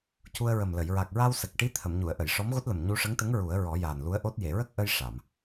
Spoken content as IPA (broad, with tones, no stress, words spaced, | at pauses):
cu˧ə̯ɹə˨˩mlə˨˩˨j ɹa˨˩k̚ɹa˧w sə˨˩k̚ʈi˧˥ t̪ʰə˨˩˨mɲu˨˩˨ə̯ʔə˨˩˨j ʂɔ˧˥mɣo˦˥t̚lə˨˩m ɲu˧ʂə˧˥ŋt̪ə˧˥ŋ ɹu˨˩˦ə̯ɹɔ˨˩˦jaː˨˩nlu˧˥ə̯ ʔo˦˥t̚ je˨˩˨ɹə˦˥k̚ʔə˧j ʂa˨˩˨m